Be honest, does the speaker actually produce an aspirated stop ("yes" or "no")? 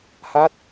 no